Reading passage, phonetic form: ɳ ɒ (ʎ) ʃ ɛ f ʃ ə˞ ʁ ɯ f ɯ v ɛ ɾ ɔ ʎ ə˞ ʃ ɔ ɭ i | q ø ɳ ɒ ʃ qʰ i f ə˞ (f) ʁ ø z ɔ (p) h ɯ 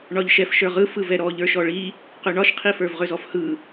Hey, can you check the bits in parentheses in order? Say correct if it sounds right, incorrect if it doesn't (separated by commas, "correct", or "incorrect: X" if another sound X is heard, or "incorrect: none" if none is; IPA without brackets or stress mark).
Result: correct, incorrect: v, incorrect: f